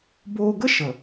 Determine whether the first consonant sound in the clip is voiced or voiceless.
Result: voiced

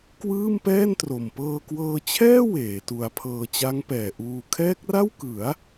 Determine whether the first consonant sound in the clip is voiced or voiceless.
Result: voiceless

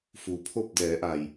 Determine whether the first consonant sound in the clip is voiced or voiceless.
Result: voiceless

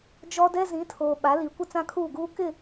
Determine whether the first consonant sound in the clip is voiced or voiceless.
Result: voiced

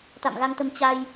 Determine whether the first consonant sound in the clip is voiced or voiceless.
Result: voiceless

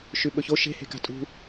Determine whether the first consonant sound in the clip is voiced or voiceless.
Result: voiceless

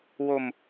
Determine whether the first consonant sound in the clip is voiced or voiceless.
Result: voiced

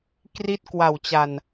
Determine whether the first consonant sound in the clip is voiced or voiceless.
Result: voiceless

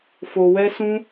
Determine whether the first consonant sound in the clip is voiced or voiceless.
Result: voiceless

